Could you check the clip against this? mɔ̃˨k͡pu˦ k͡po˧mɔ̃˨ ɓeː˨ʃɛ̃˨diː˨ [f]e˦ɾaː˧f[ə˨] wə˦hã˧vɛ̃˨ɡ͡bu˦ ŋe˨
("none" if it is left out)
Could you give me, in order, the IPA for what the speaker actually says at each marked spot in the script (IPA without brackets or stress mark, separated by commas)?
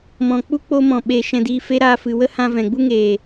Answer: f, ɨ˨